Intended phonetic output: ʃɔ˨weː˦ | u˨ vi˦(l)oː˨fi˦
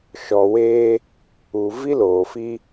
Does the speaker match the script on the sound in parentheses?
yes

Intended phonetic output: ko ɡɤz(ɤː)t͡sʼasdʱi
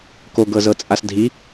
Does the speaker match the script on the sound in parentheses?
no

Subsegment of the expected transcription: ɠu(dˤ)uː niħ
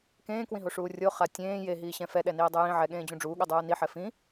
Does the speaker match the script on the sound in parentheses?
yes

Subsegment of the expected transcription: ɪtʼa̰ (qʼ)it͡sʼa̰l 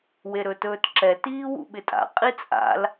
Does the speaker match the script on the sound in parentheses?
yes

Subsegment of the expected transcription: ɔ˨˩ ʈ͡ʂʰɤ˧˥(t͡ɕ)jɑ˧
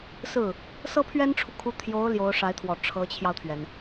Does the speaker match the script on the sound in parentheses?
no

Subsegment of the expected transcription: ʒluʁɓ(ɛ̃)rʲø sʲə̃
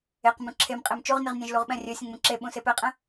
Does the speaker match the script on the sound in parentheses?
yes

